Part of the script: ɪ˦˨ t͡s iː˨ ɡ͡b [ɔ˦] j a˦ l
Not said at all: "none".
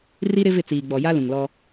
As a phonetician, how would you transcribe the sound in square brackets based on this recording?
ɔ˨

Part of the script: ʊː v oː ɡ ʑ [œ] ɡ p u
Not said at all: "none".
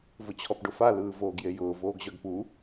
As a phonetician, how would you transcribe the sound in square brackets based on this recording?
œ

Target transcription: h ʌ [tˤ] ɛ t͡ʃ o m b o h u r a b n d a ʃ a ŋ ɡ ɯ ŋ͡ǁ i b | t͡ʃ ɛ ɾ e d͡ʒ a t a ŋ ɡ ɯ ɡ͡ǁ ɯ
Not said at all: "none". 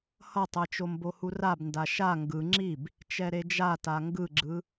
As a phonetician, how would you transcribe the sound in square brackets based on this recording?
tˤ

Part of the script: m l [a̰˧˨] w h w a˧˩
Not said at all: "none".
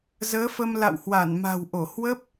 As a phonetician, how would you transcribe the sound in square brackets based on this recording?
a̰˧˨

